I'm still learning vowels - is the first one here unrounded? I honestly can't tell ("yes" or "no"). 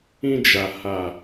yes